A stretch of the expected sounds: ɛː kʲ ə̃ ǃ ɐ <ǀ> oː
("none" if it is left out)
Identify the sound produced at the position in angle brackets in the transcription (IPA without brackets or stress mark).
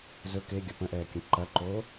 ǃ